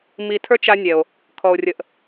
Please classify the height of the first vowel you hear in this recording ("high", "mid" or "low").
high